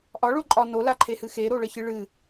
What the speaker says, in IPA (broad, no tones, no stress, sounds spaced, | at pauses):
ʔ ɒ ɭ o ǃʼ ɒ n o l a ǃʰ e h ɨ x e ɾ o ɭ ə ç ɨ ɭ ɨ